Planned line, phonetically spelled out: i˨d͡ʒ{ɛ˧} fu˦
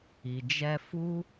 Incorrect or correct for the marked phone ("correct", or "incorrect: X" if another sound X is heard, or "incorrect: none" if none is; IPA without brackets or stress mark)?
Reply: correct